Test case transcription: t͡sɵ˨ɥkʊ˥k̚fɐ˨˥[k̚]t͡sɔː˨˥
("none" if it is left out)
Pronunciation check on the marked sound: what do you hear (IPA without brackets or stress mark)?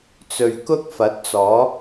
t̚